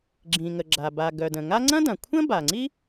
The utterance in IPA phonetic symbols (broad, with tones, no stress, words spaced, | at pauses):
ɡ͡ǁĩ˩ŋə˩ ɡ͡ǁa˩ ba˩ɡœ˩ də̃˩ŋa˥ ŋ͡ǀɐ̃˥dɐ̃˩kʷʰə̃˥ ba˩ŋ͡ǀi˥